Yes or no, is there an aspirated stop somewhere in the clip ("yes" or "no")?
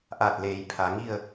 yes